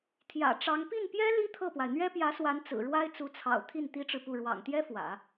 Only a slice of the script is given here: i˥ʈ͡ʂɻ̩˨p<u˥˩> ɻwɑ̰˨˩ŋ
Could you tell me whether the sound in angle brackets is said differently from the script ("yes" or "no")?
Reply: no